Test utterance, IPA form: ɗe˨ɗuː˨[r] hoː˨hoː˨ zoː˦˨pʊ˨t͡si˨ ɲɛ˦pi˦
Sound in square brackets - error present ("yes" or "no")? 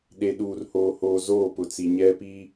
no